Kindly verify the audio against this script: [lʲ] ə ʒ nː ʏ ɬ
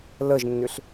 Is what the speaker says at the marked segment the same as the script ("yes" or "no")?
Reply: no